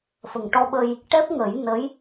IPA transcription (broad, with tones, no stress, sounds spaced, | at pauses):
f ə˨˩ ŋ ʈ ɔ˧ ɓ ə˧ j | ʈ ɛ˦˥ p̚ ŋ ə˨˩˦ j n ə˧˥ j